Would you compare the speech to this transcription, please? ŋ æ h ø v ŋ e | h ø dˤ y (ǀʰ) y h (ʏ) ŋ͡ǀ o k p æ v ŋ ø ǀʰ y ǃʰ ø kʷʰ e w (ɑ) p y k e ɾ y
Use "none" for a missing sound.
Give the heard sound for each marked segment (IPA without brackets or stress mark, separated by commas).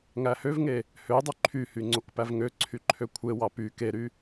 ǃʰ, y, ɑ